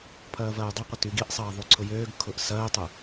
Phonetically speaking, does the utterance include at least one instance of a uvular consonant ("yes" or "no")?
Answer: yes